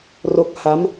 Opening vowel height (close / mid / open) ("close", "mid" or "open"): mid